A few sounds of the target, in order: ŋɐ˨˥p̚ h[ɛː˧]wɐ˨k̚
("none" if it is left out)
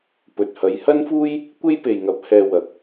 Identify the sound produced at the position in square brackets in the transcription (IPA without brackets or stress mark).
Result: ɛː˧